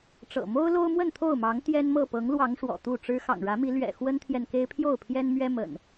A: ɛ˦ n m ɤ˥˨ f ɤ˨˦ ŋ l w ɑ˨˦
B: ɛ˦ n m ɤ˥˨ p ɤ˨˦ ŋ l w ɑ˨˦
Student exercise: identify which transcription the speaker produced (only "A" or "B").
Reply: B